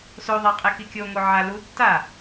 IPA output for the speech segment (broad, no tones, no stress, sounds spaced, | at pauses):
s o ðˤ a qʼ e k i kʲ o ŋ o ʕ a l u tː a